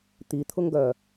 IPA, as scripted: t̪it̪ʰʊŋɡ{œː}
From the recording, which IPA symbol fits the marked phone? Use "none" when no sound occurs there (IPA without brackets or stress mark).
œ